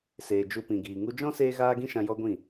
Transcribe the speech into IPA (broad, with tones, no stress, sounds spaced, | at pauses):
s eː˨ d͡ʒ u˧ p ĩ˨ ɡ iː˨ ŋ u˧ d͡ʒ ɔ̃˦ s eː˦ ɣ aː˦ ɡ ĩ˦ ʃ ã˧ j ɔ˦ ɡʷ ĩ˦˨